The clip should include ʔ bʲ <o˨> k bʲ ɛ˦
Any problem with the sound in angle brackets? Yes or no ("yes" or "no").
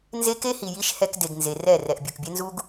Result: no